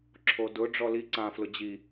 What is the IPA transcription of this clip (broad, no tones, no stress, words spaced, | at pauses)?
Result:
ǁʰodʊ ɖ͡ʐɔli ǀã flʊd͡ʑi